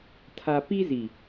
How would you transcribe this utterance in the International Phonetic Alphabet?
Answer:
tʰ a˦ p i˦ z i˨

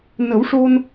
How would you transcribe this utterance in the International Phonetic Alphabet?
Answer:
n ə˨˩˦ w ʂ o˧ n

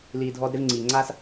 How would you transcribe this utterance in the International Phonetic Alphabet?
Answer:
l iː˨ dʱ ɔː˧ d ɾ e˧ v ŋ͡ǀ iː˨ ŋ͡ǀ aː˦ s

